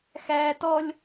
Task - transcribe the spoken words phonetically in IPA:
x æː t ɔ lʲ

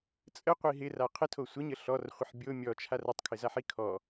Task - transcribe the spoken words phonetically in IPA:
t͡sʼ ə qʷ i ɦ ɪ r a qʰ ɪ tʰ o sʷ e ɲ ə ɬ ɔ r χʷ ɪ ħ bʲ o mʲ ɔ t͡ʃʰ a r ə tˤ kʰ ɪ z a ħ i kʰ ɔ

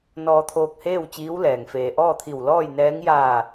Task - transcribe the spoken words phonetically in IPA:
n ɔː˧ t̪ʰ oː˧ k̚ h eː˥˨ w t͡ɕ iː˧˥ w l ɛː˩ ŋ f eː˩ ʔ ɔː˥˨ t̪ʰ i˧˩ w l ɔː˥˨ j n ɛː˧˥ ŋ j aː˧˩

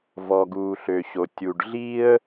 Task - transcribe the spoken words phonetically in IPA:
v ɔ˩ ɡ uː˩ ɬ ø˩ ɕ o˩ tʲ u˩ ɖ ɮ i˥ ə̯

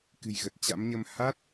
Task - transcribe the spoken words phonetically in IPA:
k ɨ̤˨˩ j ɣ ə˨˩ t̚ t͡ɕ a̰˧˥ m ɲ ə˧ m h a˦˥ t̚

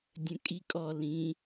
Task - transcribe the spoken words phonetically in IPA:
dʲ ə̃ kʼ i kʼ ɔ l ĩ

